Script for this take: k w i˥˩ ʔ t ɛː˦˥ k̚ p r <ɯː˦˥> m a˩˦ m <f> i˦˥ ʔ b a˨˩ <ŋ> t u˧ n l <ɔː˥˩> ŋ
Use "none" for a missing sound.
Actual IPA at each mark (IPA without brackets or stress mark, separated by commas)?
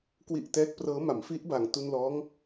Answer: ɤː˦˥, f, ŋ, ɔː˦˥